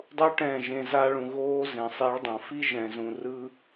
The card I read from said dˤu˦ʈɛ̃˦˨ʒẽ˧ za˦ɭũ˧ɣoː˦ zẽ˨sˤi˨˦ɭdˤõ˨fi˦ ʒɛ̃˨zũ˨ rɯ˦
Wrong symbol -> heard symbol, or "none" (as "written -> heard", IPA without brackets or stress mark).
none